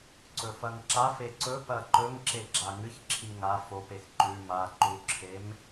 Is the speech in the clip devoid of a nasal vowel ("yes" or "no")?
yes